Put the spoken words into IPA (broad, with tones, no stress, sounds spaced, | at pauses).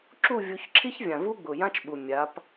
ǁ u˥˨ vʲ u˨˦ ç ǁʰ i˥ ç vʲ ã˨˩ v u˥ ɡ͡b ʊ˨˩ j ã˥ t͡ʃ ɓ u˨˩ mʲ a˨˦ p